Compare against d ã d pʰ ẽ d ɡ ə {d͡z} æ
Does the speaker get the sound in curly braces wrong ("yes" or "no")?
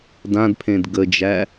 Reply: yes